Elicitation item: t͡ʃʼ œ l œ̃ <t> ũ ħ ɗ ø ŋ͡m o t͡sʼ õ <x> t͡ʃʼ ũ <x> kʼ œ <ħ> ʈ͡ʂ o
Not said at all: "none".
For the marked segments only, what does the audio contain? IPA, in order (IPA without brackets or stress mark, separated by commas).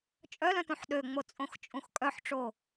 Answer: t, x, x, ħ